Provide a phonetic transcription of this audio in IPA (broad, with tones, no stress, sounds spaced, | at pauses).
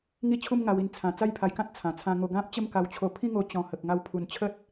ŋ i˥˧ t͡ɕʰ u˥˧ m ŋ a˧ w i˧ n t͡sʰ ã˨˩ t͡s a˥˧ j pʰ a˧ j k ã˦ t̚ t͡sʰ ã˨˩ t͡sʰ ã˧ ŋ o˧ ɡ ã˦ p̚ t͡ɕ ə˥˧ m k a˧ w t͡ɕʰ o˧ pʰ ĩ˥˧ ŋ o˧ t͡ɕ ɔ̃˨˩ h ə˨ k̚ ŋ a˧ w pʰ u˨˩ n t͡ɕʰ ə˦ t̚